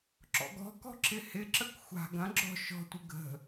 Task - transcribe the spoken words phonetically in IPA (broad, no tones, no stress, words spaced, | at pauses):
ǁɔ̰ɡɔ̤kɔ̤ ǁɪhɪǁək xʷa̤ ɡɐ̃ ɡ͡ǁɔ̤ ʃɔ̤tʷɪ ɡə̤